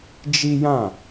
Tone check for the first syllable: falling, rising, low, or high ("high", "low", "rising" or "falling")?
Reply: high